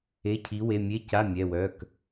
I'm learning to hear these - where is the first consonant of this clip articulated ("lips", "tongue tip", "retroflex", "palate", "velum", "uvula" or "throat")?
palate